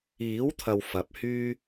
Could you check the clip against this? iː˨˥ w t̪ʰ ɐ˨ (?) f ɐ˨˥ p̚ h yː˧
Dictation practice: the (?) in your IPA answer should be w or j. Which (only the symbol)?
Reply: w